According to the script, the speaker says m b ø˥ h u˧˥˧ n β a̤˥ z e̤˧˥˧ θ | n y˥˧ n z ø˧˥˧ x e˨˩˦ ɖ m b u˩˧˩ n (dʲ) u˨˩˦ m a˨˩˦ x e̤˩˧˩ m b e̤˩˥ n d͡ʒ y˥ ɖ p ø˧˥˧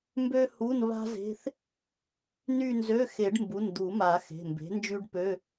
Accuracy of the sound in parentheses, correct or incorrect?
incorrect